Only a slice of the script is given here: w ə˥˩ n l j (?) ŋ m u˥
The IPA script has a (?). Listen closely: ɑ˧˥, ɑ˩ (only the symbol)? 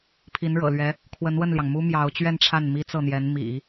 ɑ˩